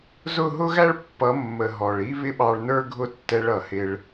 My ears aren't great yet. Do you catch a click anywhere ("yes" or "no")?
no